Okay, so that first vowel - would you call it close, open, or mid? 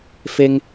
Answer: mid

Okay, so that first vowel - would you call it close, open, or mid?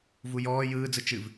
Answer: close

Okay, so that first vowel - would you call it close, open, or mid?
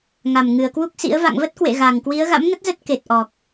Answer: open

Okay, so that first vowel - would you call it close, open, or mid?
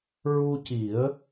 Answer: close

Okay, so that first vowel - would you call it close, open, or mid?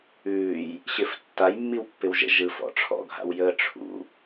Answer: close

